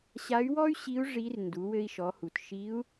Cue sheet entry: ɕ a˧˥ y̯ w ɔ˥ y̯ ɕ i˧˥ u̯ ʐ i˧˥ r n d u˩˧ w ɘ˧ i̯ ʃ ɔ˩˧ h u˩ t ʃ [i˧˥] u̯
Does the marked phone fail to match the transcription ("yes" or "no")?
no